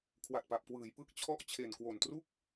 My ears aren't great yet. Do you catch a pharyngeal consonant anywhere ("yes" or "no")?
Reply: no